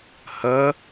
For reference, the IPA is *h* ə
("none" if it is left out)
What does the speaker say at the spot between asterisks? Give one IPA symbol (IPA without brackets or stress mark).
h